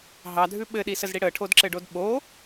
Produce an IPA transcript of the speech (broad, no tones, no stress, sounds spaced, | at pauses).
ɦ ɑ dʱ ʉ ɓ ɘ ɗ i s ə z ɽ i ɽ ə ʈʰ o d ǁ ɘ ɖ o d ɓ o